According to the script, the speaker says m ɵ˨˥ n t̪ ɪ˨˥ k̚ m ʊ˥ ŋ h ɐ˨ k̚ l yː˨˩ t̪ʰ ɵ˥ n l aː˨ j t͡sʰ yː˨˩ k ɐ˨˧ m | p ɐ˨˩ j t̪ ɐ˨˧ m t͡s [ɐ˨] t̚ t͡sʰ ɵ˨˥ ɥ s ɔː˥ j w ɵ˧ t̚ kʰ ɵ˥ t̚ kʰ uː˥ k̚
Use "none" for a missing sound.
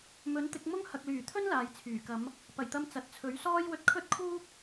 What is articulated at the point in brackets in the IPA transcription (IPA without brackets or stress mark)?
ɐ˨